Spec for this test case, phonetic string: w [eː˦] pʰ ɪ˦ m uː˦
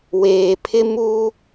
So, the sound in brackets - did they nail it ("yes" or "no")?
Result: no